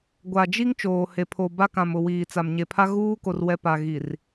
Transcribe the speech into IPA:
ɡʷ a˨ d͡ʒ i˦ ŋ t͡ʃ oː˨ h e˨ pʰ o˨ b a˦ k ã˨ m ʊ˨ w iː˨ t͡s a˨ m ɲ e˨ pʰ a˦ ɣ uː˦ k o˨ r w ɛ˨ p a˨ ɣ i˨ r

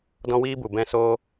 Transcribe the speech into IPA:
d ɔ̃˦ w iː˦ b u˨ b ɛ̃˦ s oː˦

